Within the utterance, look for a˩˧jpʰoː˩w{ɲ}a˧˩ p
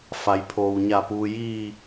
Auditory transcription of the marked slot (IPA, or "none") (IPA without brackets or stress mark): ɲ